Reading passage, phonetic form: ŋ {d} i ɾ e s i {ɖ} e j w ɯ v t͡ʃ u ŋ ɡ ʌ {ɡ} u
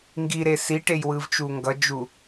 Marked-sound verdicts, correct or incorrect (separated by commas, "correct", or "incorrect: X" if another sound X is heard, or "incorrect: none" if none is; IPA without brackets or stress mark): incorrect: ɡ, incorrect: ʈ, incorrect: d͡ʒ